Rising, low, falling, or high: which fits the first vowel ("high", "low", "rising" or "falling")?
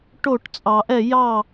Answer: falling